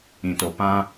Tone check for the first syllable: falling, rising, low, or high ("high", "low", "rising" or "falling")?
low